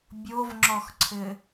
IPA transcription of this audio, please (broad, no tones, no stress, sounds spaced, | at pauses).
bʲ o v ŋ͡ǁ ɔ x ǀʰ ɘ